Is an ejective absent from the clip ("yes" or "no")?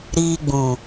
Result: yes